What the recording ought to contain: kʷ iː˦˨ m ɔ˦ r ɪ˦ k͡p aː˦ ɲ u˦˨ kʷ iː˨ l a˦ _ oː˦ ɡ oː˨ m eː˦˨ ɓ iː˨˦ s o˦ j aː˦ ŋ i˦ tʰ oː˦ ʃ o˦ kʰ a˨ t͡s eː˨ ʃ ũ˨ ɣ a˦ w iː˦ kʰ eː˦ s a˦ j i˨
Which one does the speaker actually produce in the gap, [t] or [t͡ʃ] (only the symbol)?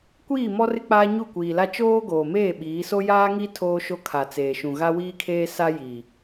t͡ʃ